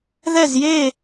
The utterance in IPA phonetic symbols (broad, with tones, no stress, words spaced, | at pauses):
ðɛ˥˧zje˥˧